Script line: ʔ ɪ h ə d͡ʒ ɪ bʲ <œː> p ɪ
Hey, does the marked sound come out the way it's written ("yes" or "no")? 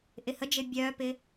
yes